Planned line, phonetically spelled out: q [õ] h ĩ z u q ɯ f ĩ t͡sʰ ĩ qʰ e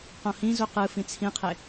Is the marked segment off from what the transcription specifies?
no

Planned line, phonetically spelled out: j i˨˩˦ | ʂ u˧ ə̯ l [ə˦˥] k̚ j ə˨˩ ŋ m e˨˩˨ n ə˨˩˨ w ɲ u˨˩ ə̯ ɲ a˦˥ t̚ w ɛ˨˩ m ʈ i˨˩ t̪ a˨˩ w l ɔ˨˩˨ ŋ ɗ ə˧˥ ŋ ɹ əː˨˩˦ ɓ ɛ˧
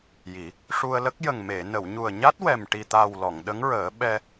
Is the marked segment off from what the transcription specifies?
no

